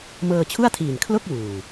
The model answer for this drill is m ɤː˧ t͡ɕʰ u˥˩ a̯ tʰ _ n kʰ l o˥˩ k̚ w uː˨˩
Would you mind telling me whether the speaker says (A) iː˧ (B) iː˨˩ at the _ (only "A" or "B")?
B